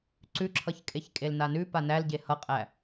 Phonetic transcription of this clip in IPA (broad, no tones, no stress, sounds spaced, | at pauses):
ǀ ʉ ǁʰ ʌ ç kʼ e ç kʼ e l n a n ʉ p a n æ l ɟ e h ʌ qʼ æ